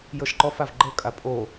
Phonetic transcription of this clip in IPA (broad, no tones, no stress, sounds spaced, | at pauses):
j ɤ ʃ ǃ ɔ f a v ɡ͡ǃ ɤ kʼ a pʼ o